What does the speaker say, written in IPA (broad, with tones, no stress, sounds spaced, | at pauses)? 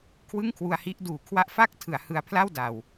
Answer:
kʰ w ɯ˥˩ ŋ kʰ w u˧ a̯ h i˦˥ ʔ d uː˨˩ kʰ w a˦˥ ʔ f a˥˩ k̚ tʰ ɯ˩˦ a̯ h ɯ˧ a̯ pʰ l a˥˩ w d a˨˩ w